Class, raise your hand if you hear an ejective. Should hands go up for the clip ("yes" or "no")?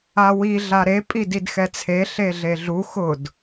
yes